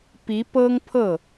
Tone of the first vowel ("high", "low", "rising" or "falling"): rising